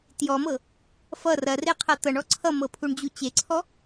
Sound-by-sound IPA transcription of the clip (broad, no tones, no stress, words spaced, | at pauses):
tjɔmɤ | fʌ rɐreqʰɐ t̪ʌɳɔ ǀʰʌmɤpʰuɳd͡ʑu t͡ɕeǀʰɔ